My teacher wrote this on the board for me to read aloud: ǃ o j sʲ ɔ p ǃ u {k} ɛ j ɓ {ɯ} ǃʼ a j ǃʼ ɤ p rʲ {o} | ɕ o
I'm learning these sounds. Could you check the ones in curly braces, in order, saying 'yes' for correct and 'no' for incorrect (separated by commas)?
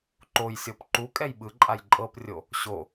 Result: no, yes, yes